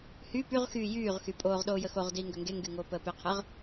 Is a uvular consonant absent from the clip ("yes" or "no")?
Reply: no